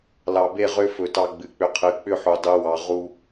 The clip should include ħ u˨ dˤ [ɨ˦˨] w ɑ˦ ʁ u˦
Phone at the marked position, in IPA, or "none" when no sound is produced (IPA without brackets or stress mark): ɨ˦